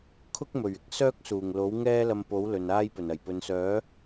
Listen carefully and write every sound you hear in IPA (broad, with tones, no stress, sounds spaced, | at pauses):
kʰ ʊ˥ k̚ m ɵ˨˩ ɥ ɪ˥ k̚ s œː˥ k̚ s uː˨˩ ŋ l o˨˥ w ŋ ɛː˥ l ɐ˧ m p o˨˥ w l ɵ˨ n aː˥ j p ɵ˨˩ n ɐ˨˩ j p ɵ˨ n s œː˨˥